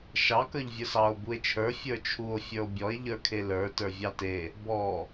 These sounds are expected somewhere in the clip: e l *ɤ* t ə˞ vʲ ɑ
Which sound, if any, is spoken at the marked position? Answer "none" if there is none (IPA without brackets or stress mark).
ə˞